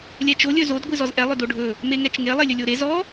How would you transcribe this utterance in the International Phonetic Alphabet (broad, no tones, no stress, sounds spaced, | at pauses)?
lʲ ɛ t͡ʃ o lʲ ɵ z o d ɡʷ ɨ z ɔ z ʔ ɛ lˠ ɵ d o ɖʱ ɵ | m e ŋ ɛ t͡ʃ ŋ e lˠ e lʲ ɵ lʲ o ɾ e z ɔ